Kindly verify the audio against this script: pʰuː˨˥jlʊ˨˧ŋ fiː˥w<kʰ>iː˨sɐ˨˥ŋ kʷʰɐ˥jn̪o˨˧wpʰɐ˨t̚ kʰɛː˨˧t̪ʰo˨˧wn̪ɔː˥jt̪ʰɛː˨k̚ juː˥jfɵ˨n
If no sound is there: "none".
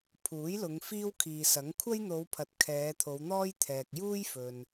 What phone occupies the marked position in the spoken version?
kʰ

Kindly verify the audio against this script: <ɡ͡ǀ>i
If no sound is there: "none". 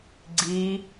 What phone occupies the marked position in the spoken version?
ɡ͡ǀ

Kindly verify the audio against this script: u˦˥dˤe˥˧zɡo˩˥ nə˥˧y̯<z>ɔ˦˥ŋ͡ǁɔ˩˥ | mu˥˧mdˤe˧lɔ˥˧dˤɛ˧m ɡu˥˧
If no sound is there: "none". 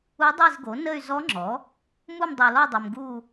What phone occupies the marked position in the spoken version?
z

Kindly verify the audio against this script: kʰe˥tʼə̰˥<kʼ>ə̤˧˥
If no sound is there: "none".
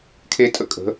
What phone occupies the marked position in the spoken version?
kʼ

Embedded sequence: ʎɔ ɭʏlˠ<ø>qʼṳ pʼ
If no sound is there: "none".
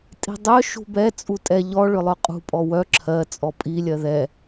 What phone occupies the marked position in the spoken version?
œ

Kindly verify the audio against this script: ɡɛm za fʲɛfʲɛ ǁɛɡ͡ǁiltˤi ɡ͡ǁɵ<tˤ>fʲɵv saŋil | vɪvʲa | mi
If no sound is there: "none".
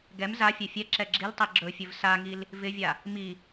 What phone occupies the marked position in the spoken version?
none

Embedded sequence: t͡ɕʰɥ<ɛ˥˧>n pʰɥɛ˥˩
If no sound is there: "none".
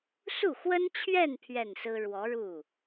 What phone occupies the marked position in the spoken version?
ɛ˥˧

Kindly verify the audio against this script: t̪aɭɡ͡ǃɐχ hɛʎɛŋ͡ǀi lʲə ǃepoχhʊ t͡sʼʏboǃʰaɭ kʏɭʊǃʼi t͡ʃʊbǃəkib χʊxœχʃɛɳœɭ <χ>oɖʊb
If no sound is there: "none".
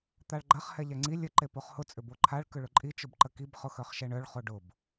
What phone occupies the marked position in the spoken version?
χ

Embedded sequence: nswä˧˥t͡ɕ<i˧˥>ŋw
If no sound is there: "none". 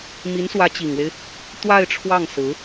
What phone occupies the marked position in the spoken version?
i˨˩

